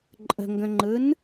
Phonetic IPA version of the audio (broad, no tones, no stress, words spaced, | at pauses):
ǃʼə̤ŋɡə̃ŋ͡ǃɯn